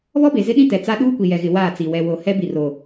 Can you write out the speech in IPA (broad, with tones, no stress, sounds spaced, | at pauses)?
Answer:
β ɔ˦ b e˨ z ɪ˦ ɗ ĩ˦ t ɛ˨ t͡s a˦ ɗ uː˦ kʷ i˨ j ɛ˨ ɣ ɪ˨ w aː˦˨ t͡s i˨ w ɛ˨ w o˨ h ɛ˦ b i˨ r o˨